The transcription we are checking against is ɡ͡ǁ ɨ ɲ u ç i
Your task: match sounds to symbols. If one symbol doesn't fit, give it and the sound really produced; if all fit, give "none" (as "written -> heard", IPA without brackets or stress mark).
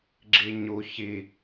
ɨ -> i